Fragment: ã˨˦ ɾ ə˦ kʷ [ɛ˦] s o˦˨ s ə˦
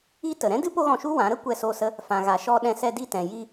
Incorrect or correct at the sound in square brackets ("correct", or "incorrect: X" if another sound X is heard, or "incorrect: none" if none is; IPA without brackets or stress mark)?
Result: incorrect: ɛ˦˨